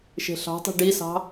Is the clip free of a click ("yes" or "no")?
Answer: yes